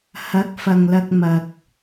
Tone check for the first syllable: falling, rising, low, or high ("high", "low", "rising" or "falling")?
rising